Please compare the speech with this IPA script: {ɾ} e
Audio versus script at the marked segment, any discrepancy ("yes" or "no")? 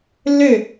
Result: yes